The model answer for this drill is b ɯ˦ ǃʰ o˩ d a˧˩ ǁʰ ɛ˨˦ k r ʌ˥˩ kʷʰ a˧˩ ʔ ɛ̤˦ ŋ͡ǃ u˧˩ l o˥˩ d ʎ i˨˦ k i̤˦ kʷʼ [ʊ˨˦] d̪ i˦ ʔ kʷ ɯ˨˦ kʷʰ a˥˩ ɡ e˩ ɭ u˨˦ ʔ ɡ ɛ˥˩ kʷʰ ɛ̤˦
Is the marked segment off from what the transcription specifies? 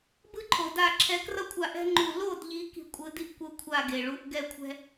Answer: yes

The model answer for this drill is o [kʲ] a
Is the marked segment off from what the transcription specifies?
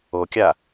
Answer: no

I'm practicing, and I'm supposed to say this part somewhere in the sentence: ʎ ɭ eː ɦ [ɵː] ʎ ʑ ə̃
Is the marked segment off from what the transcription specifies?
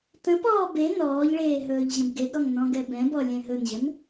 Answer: no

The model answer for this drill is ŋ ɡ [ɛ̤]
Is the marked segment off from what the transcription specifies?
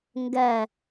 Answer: yes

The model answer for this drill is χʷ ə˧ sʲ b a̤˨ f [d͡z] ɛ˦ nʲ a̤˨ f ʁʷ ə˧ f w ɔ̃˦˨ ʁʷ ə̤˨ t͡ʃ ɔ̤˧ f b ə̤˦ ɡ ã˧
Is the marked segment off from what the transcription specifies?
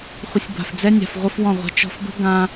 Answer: no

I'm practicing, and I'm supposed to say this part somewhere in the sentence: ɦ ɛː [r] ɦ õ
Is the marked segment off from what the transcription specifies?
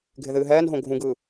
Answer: yes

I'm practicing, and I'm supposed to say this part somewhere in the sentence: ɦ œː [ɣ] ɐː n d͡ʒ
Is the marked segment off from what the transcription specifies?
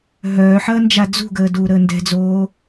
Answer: yes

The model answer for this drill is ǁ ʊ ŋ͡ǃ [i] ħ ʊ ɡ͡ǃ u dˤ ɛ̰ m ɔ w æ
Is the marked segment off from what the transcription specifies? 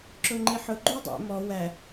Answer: no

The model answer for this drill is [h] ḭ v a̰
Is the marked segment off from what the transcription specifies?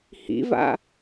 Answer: no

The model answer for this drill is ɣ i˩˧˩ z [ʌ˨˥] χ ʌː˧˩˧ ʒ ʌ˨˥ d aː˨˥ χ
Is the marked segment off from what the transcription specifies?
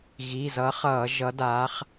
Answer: no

